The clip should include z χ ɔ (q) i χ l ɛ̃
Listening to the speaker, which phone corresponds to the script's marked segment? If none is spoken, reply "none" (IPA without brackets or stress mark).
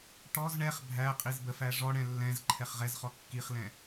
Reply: kː